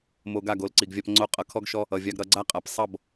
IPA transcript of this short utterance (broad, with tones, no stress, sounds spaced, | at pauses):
m o˧ ɡ a˦˨ ɡ o˧ l ǀ i˨ ɡ vʲ a˧ p ŋ͡ǀ o˧ qʼ ʌ˨ kʰ ɔ˦ ɡ ʃ ɔ˦ | ʌ˨ vʲ a˧ ɡ ɾ ʌ˧ ɡ͡ǀ a˦ qʼ a˨ p sˤ ʌ˦˨ b